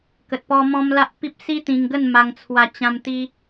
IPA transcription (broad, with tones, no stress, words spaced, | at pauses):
kə˨t̚pɔ˧ mɔ̃˦m la˦ʔpi˦p̚ si˦t̪ĩ˧ŋɡə˥˧n ma˧ŋt͡sʰwa˧t͡ɕã˧m t̪i˧